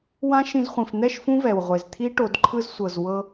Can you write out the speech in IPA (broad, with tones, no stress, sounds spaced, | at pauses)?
w ã˦ ʃ ĩ˧ z χʷ ĩ˨ f n̪ ɛ˦˨ ʃ f ũ˦ v ɛ˨ w ʁʷ e˨ z t̪ʰ i˦ ʈ o˧ d ǃʰ ɯ˧ z sʷ ɤ˨ z w ɤ˧